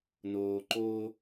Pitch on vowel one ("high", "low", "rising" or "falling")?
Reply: low